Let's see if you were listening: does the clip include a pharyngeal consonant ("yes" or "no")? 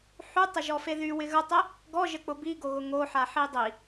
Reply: yes